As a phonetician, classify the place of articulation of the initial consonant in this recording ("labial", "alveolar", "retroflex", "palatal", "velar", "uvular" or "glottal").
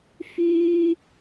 labial